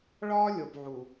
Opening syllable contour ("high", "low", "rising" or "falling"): high